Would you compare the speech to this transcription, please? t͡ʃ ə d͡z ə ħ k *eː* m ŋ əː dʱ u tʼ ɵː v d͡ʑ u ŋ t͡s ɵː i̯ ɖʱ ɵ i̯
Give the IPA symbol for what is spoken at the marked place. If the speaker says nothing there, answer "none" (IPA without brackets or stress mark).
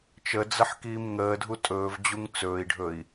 iː